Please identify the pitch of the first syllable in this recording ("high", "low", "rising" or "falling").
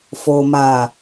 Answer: low